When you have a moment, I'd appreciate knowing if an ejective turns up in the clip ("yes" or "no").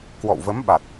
no